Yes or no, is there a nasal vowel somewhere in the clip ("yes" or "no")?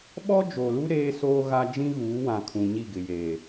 yes